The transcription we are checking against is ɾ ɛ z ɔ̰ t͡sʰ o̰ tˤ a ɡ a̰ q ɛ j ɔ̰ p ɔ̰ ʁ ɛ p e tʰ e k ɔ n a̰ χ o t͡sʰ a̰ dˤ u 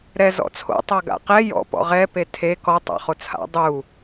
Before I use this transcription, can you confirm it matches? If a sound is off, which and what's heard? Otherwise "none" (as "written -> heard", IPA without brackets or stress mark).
n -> tˤ